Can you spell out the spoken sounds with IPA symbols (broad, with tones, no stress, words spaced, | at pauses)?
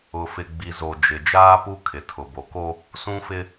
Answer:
ʊ˨fɪ˨ ɡ͡bi˨zo˨ d͡ʒɪ˨ d͡ʒaː˦pu˦ kʰɪ˨tʰʊ˨bo˨ko˦ | sũ˦fɪ˦